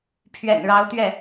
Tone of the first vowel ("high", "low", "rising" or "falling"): low